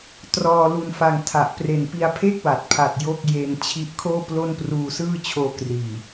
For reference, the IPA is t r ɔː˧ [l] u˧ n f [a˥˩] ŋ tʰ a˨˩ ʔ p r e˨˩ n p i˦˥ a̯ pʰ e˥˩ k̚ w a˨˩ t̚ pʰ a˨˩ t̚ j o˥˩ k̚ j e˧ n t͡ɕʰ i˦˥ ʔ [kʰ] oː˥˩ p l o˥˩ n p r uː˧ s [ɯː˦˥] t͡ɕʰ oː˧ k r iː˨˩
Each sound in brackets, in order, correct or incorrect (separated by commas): correct, incorrect, correct, incorrect